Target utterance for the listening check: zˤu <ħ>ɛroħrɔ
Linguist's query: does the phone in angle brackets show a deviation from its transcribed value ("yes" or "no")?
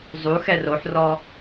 yes